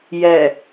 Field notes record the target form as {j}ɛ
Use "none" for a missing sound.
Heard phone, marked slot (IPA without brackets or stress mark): j